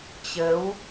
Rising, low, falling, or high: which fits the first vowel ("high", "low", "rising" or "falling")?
rising